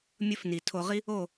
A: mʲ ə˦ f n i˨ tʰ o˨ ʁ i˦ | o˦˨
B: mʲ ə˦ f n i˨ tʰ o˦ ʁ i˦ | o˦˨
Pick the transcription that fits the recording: A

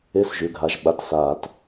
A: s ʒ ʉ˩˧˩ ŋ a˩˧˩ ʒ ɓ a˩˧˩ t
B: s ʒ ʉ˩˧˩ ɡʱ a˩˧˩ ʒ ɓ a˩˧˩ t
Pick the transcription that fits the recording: B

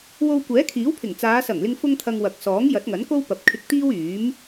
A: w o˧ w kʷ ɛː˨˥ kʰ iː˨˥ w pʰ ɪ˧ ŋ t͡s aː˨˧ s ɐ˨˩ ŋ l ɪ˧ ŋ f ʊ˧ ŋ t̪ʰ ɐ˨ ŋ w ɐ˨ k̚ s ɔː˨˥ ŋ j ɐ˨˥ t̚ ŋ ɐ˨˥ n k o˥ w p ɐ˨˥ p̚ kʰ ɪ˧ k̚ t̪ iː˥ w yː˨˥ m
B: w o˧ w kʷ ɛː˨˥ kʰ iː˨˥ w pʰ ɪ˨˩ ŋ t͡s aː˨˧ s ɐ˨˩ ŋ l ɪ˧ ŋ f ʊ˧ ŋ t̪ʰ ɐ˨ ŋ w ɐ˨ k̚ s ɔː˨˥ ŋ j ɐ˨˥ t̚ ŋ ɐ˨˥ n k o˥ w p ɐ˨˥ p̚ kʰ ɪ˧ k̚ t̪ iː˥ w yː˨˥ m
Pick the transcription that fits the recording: B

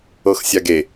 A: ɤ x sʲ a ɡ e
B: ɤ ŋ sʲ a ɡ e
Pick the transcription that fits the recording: A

